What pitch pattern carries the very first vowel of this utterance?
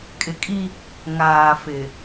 low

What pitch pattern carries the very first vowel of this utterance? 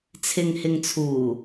low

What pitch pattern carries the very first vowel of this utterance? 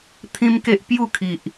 high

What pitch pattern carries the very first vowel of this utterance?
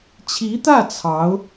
rising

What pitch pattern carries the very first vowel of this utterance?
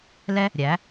high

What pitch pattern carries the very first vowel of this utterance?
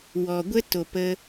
low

